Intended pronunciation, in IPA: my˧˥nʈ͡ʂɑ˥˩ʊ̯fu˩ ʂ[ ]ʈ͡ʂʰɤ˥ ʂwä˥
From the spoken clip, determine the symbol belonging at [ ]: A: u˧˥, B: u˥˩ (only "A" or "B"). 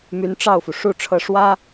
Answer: B